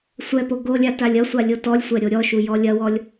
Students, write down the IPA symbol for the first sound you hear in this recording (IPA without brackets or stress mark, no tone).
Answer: sʷ